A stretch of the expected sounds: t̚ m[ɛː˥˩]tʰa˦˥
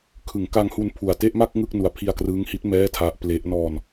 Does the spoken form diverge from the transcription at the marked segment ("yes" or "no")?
no